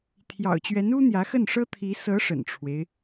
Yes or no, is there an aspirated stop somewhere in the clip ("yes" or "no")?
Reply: yes